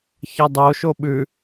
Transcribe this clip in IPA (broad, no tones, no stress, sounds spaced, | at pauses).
ç ɐ dˤ o ʃ o ɓ ʉ